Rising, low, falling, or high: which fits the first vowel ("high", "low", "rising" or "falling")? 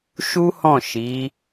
high